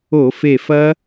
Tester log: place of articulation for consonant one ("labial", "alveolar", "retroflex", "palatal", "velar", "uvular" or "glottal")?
labial